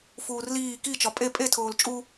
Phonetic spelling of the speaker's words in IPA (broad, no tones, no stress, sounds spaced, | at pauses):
f uː r l iː k i t͡ʃ ɒ pʼ e pʼ e tʰ oː l t͡ʃʼ u